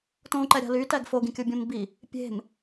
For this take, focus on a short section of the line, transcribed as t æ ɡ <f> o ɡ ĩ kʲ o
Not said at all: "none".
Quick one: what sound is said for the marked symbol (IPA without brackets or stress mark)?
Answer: f